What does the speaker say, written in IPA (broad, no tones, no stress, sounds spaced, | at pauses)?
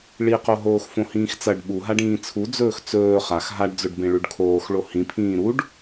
ɭ i q o ɦ oː x f õ h ĩː x t͡s ɐ ɖ ɓ u ɦ a ɖ ĩː t͡sʰ u d͡z ɵː x t͡s ɵː χ a x ɦ a ɖ d͡z ɵ ɖ b ẽ ɭ ʉ ɖ kʰ oː x ɭ o h ĩ pʰ ĩː ɾ u ɖ